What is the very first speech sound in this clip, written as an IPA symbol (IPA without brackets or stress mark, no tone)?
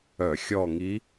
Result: œ